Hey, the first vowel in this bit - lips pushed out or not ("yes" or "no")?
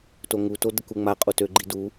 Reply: yes